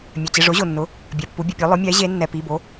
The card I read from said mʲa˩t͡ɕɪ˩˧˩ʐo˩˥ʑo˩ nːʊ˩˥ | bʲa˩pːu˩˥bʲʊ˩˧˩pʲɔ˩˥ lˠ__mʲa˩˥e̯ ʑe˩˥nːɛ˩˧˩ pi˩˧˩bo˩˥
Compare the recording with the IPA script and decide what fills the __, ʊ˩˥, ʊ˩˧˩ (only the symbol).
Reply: ʊ˩˥